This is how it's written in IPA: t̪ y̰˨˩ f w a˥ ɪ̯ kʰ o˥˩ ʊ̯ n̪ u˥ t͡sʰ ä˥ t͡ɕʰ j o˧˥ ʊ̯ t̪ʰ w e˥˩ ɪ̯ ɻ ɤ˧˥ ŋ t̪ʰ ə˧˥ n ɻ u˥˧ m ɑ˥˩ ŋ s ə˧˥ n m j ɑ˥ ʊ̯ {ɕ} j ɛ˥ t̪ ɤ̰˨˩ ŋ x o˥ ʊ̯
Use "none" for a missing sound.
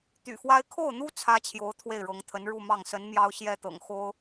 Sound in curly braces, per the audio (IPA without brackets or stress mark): ɕ